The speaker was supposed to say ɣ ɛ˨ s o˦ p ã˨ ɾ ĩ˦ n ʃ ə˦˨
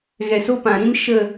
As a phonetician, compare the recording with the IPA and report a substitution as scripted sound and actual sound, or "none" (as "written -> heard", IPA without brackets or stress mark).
none